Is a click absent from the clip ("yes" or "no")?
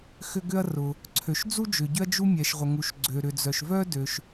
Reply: no